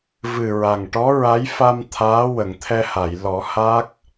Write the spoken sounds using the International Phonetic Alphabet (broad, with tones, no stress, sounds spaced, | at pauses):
v ɨ˨˩ ɹ a˨˩ ŋ ʈ ɔ˧˥ ɹ a˧˥ j f a˧ m t̪ʰ aː˧˥ w ə˨˩˨ ŋ t̪ʰ ɛ˧ h a˨˩˨ j l ɔ˨˩˦ h a˦˥ k̚